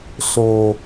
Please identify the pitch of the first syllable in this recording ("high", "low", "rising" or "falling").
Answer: low